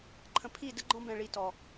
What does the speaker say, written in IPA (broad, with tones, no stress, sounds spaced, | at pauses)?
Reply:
ǃʰ ə̃˨ pʰ i˦˨ d ə˦ ɡ͡ǃ ɔ̃˦ b ɛ̃˨ ɭ i˨ t ɔ˨